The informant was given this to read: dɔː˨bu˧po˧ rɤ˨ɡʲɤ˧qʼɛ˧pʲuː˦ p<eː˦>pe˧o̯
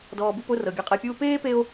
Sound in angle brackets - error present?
no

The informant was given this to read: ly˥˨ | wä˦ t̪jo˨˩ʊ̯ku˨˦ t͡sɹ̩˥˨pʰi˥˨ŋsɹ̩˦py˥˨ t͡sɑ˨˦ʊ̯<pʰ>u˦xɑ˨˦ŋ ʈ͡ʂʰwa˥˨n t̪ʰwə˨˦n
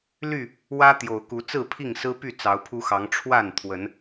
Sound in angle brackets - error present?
no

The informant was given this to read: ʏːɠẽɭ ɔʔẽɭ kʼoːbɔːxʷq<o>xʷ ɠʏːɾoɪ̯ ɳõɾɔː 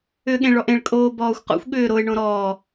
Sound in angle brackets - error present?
yes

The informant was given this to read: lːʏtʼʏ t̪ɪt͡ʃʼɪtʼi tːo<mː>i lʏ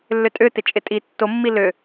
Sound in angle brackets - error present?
no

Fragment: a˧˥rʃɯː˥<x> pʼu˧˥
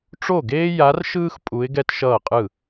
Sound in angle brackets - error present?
no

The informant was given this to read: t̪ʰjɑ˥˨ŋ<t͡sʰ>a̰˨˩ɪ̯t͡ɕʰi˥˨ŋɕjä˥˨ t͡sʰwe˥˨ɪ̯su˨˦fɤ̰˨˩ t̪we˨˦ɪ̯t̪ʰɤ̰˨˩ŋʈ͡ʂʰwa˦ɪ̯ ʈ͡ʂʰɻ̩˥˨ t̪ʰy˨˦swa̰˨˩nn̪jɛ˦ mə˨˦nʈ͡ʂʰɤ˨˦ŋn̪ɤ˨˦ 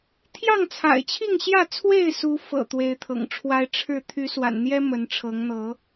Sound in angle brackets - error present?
no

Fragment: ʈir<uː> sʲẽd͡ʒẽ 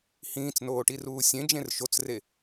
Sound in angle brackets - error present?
no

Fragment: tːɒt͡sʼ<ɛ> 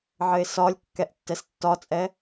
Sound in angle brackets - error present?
no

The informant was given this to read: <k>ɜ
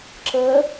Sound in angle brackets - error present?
yes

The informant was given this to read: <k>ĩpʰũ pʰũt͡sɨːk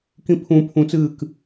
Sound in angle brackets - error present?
no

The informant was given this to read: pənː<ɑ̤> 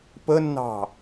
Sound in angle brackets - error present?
no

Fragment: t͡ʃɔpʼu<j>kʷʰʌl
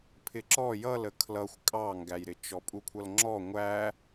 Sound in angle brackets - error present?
yes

